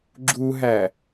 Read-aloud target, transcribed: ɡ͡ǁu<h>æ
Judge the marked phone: incorrect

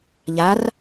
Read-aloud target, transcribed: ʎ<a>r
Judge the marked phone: correct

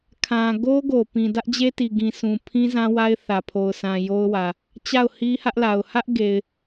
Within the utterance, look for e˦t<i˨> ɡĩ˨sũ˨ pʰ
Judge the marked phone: correct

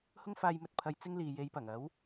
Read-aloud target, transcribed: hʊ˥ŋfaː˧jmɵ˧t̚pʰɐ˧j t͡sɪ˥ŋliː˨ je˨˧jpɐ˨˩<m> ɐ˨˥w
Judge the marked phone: incorrect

